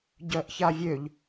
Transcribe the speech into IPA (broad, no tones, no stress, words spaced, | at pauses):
ɟœʔçavʲøʎ